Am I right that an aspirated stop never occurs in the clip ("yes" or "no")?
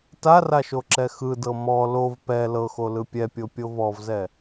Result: yes